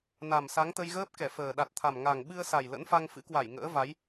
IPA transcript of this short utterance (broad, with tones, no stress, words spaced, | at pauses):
na˨˩msa˨˦ŋt̪ə˧jɣəː˦˥p̚ kɛ˧˩fəː˨˩ ɗa˨˩t̚t̪ʰa˨˩m ŋa˨˩ŋɓɨ˧ə̯sa˨˩j lə̰˧˥nfa˧ŋfɨ̰˧˥kwa˧˩j ŋə̰ː˧˥va˨˦j